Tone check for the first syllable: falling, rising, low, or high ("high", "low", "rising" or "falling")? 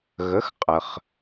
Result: rising